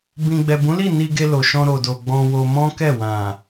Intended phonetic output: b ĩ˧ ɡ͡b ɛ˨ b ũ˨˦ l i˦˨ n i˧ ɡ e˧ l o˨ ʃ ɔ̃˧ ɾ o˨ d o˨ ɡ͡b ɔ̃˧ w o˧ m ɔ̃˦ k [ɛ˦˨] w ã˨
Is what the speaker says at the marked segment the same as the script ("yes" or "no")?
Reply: yes